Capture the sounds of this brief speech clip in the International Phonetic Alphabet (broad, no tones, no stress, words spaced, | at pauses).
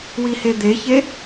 wihed̪eçe